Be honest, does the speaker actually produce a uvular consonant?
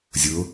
no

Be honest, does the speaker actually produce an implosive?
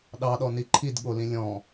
yes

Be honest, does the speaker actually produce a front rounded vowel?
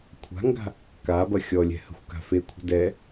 no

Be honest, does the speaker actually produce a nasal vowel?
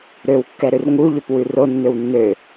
no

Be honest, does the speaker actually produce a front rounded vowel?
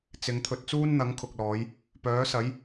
yes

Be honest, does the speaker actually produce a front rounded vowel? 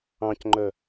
yes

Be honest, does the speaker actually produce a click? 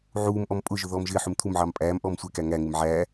no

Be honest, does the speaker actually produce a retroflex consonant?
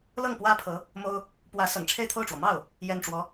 yes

